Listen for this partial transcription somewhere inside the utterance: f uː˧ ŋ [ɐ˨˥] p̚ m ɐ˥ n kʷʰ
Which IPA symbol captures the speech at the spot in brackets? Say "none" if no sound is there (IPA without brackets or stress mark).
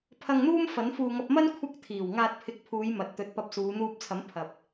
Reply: ɐ˧